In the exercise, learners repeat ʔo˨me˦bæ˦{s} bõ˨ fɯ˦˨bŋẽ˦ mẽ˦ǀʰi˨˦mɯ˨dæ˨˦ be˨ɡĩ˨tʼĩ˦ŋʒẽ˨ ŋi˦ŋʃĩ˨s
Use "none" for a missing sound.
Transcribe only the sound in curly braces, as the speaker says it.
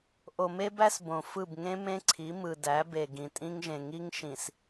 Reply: s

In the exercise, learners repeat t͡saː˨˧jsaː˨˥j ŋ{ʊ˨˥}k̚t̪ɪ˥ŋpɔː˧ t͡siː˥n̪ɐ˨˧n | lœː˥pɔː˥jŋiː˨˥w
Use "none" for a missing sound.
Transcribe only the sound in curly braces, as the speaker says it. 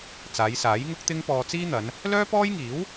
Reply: ʊ˥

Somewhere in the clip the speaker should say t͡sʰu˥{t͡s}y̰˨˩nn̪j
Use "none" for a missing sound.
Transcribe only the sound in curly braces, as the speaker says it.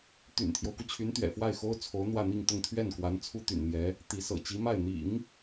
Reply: t̪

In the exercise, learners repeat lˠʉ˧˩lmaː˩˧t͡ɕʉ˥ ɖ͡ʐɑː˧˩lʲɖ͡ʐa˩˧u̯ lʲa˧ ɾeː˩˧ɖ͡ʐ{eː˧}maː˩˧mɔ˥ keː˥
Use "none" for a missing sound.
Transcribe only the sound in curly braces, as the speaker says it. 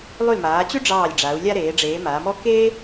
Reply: eː˩˧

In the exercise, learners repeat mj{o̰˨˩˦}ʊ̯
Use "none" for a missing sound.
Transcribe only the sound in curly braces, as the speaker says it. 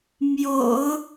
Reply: o̰˨˩˦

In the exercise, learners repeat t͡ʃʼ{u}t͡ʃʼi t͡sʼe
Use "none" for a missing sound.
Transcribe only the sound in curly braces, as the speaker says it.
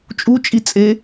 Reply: u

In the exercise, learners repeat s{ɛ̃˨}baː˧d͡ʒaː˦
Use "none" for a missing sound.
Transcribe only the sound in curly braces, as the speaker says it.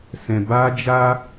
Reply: ɛ̃˨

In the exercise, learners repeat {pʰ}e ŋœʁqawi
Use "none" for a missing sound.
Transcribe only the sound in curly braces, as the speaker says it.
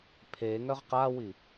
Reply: pʰ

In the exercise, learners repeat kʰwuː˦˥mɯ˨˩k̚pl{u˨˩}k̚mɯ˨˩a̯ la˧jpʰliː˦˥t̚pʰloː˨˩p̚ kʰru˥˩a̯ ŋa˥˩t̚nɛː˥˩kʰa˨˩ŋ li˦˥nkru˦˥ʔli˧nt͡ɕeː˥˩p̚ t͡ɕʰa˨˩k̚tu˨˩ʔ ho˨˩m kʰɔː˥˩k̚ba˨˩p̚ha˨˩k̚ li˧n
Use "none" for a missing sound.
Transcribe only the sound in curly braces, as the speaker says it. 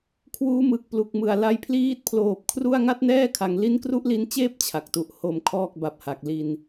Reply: u˨˩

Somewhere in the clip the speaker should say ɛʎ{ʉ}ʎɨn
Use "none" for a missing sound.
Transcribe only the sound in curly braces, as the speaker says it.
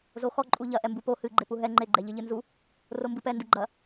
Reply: ɘ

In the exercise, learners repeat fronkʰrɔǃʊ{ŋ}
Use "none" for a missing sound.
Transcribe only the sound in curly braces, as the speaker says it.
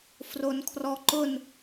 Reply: n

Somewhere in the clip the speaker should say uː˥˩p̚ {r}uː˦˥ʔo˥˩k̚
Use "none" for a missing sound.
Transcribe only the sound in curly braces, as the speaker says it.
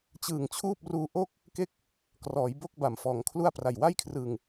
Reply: r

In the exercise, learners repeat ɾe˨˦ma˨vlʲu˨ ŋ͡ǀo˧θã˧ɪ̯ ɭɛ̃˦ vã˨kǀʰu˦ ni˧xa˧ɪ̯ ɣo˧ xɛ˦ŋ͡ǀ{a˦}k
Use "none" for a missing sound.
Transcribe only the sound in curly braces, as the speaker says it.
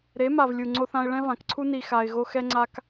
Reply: a˦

